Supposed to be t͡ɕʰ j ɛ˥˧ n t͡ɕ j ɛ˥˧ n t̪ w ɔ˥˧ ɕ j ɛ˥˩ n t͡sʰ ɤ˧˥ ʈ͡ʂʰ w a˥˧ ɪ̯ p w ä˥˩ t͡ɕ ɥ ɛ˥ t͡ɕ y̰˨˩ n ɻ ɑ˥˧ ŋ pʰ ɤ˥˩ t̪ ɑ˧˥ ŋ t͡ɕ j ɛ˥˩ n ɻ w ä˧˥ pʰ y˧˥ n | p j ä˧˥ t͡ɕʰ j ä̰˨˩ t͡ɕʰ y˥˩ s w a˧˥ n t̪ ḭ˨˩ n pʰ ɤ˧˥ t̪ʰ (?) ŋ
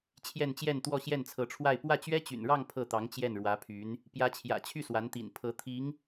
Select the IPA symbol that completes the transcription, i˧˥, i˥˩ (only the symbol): i˧˥